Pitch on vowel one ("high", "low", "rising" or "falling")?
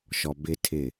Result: low